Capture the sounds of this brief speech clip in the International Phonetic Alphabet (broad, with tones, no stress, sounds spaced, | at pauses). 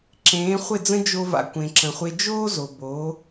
ǁ ẽː˩˥ χʷ ɪ˥˩ d͡z ə̃˥ d͡ʒ o˧ v a̰˩ kʷ ẽ˩ ǁ ə̃˩ χʷ e˧ d͡ʒ oː˥ z o˩ b oː˩˥